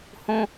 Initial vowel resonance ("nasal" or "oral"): nasal